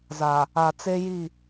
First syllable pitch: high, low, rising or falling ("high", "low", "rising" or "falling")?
low